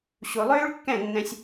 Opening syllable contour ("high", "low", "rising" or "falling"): low